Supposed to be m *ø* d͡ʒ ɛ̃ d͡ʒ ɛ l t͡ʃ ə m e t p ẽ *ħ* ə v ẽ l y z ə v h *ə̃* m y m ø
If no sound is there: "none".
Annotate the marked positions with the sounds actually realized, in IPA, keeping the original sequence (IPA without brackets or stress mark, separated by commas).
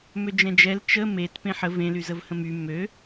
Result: ø, ħ, ə̃